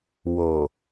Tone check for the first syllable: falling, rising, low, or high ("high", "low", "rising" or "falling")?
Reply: low